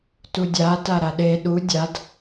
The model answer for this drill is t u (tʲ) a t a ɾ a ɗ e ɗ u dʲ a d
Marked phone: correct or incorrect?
incorrect